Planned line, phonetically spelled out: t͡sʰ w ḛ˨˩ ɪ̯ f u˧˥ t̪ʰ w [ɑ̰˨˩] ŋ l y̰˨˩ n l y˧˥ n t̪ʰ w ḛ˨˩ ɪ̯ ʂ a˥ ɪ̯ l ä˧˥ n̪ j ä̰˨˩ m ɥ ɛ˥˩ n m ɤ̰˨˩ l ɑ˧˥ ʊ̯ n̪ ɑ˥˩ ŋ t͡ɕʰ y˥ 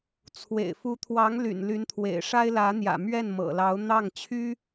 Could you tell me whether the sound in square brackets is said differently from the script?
yes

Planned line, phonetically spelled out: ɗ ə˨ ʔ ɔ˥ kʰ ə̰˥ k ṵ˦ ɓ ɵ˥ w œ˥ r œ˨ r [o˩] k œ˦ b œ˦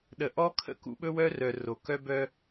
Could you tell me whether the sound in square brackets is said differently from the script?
no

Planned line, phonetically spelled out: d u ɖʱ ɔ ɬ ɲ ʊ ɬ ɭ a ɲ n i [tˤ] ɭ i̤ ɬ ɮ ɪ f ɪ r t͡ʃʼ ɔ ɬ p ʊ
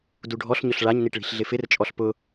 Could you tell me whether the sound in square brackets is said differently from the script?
yes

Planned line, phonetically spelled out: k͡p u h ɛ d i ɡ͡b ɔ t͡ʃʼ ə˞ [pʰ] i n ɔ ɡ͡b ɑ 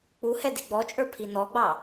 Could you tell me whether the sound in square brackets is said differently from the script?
no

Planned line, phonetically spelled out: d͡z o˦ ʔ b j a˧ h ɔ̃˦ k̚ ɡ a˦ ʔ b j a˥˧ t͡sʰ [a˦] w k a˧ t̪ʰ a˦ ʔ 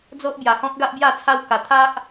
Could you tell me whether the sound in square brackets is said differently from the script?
no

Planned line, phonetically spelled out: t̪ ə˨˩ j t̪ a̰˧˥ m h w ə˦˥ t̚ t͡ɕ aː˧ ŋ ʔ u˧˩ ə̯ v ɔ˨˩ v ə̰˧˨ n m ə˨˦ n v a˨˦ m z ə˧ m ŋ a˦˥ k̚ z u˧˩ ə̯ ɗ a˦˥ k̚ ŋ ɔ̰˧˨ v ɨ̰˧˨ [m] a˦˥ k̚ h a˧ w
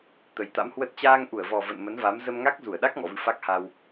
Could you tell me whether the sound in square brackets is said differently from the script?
yes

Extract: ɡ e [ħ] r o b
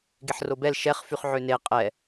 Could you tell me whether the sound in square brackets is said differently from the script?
no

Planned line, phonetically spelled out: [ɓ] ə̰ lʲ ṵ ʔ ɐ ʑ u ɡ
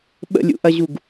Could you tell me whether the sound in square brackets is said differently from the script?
no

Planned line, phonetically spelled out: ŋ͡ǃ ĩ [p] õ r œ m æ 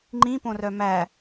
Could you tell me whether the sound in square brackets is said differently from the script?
no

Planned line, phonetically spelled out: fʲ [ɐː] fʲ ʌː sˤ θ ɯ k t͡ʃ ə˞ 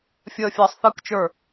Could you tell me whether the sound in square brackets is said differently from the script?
yes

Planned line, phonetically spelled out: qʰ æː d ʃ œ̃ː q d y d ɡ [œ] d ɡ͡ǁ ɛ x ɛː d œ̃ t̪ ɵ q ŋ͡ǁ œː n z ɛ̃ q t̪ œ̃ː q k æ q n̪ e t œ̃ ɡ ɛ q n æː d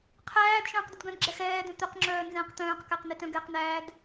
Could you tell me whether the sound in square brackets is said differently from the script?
yes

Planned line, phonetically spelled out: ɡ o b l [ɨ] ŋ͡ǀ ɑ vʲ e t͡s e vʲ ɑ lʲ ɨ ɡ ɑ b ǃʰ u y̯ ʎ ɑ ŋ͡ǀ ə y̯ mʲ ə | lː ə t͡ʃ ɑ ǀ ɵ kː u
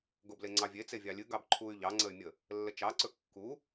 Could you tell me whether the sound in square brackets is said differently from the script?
yes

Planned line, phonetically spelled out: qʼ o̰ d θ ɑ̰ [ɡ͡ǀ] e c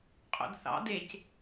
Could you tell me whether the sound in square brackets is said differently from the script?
yes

